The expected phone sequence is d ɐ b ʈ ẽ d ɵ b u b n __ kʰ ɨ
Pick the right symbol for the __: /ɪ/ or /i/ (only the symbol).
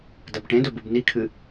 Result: i